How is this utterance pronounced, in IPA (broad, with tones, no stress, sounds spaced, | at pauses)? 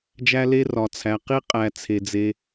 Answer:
d͡ʒ æ˥ l e˥ r ɒ˩ t͡sʰ æ˩ q i˥ qʼ æ˨ t͡sʰ e˩ d͡z e˨